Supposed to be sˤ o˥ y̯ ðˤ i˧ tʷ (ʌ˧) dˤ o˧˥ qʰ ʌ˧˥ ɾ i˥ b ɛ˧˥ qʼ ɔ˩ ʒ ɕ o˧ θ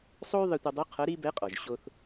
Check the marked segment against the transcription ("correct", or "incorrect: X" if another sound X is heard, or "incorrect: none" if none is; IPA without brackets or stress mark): correct